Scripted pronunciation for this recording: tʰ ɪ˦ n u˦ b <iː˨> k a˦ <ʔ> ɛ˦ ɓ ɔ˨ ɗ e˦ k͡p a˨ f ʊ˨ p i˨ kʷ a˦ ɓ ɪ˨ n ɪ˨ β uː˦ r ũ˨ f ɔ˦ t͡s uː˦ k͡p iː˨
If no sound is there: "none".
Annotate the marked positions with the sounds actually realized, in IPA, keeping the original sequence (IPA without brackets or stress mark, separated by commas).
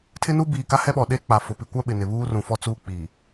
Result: iː˨, h